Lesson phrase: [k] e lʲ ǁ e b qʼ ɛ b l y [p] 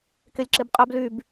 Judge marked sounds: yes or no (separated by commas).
yes, no